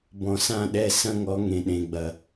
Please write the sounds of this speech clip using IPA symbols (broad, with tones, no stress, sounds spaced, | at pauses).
b ɔ̃˨ s ã˦˨ ɗ ɛ˦˨ s ɐ̃˦ ŋ ɔ˨˦ ŋ ẽ˨ ɗ ẽ˨ ɡ͡b ɐ˨